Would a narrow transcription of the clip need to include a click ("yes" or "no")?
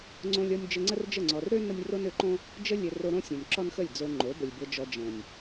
yes